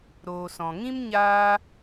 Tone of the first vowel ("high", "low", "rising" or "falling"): low